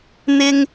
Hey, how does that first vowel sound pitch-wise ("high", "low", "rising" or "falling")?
high